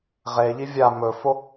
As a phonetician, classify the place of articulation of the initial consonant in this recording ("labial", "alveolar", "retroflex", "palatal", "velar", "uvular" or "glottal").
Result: uvular